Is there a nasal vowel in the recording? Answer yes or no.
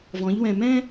yes